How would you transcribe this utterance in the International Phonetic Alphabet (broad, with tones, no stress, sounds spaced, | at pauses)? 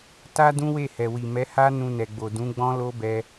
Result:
t a˦ d ũ˦ w e˦˨ h ɛ˨ w i˨ m ɛ˨˦ h a˦ n ũ˧ n ɛ˨ ɡ͡b o˨ d ũ˨˦ ɡ͡b ɔ̃˦ l o˦ b ɛ˧